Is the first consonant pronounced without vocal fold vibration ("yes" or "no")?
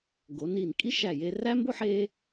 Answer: no